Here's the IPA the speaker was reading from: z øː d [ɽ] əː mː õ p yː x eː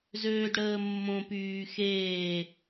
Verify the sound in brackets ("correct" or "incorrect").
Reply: correct